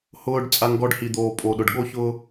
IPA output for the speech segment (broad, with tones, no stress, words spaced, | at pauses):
hʊː˧ɖ t͡sʼa˧ŋɡɔ˧ɖhi˨d̪oː˨ pʼo˨ɗʊ˨ɖɠo˦çʊː˦